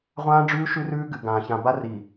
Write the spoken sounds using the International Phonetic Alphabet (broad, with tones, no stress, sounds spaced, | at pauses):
ʁʷ ãː˦ ɖ͡ʐ ʉː˦ ʃ ʉ˦ r ʉː˦ ɡ ɨ˨ ɡ ãː˨ ç ã˨ b a˦ r i˨